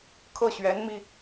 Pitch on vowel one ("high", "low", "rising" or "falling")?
falling